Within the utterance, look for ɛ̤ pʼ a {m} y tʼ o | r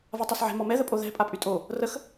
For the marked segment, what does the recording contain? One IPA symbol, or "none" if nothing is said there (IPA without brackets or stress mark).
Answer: pʼ